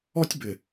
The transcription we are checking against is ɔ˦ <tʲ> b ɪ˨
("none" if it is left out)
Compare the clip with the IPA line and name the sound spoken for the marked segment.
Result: tʲ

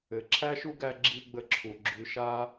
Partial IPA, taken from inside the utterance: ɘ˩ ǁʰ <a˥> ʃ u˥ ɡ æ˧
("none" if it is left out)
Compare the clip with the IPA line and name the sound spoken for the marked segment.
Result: æ˥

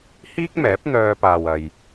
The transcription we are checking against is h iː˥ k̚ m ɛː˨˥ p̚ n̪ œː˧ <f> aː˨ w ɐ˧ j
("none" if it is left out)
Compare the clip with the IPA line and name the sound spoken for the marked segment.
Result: p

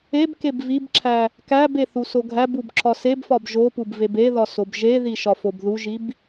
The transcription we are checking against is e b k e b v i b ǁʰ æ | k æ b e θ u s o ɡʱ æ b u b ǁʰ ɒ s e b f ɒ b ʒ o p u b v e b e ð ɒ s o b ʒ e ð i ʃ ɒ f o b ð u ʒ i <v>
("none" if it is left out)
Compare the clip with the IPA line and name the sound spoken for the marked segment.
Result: b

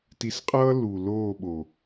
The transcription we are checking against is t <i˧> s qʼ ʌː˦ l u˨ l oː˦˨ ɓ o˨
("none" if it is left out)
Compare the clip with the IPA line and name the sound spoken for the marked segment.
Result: i˧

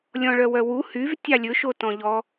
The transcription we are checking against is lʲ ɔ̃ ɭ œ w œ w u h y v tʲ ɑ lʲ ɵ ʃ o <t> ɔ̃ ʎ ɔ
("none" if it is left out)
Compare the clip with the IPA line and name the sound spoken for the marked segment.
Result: t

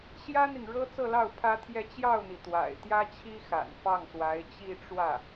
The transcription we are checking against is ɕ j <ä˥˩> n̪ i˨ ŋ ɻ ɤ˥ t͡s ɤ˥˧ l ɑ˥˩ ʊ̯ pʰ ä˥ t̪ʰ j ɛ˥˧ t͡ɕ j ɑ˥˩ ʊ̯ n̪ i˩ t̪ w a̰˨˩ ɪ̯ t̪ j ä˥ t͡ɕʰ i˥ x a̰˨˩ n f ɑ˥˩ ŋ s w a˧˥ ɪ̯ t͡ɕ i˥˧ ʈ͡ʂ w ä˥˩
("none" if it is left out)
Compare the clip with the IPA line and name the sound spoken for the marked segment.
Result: ä˥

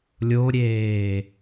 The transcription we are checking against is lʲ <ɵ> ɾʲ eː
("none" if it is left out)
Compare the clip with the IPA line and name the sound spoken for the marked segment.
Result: o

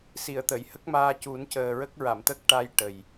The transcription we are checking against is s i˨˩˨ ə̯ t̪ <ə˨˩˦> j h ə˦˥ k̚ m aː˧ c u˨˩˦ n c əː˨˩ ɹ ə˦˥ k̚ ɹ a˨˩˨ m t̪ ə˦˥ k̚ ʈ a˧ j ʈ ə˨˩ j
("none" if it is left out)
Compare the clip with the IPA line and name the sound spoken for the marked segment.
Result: ə˨˩˨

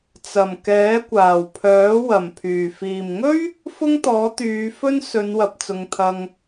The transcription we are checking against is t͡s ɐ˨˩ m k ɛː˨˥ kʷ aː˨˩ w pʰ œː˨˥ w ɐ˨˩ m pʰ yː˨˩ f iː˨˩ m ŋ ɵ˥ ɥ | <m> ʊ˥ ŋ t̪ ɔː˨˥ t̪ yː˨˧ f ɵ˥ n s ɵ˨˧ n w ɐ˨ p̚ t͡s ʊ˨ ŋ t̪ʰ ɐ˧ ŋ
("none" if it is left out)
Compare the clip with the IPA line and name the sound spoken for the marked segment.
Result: f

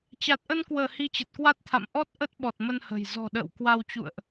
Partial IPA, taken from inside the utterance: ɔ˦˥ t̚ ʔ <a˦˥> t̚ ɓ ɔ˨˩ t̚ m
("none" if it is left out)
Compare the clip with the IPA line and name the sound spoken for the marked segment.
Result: ə˦˥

